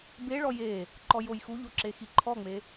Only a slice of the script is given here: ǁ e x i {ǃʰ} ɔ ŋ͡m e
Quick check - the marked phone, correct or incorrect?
correct